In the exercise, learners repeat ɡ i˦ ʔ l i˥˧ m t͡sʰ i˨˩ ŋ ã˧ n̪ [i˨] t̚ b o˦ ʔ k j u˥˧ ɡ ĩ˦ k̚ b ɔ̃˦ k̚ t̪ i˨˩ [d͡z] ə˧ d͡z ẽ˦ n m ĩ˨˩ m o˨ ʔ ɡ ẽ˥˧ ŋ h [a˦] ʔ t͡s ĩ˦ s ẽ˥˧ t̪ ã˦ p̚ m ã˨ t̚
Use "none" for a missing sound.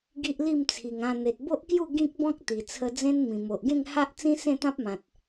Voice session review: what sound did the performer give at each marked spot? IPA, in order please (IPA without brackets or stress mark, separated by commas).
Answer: e˨, t͡sʰ, a˦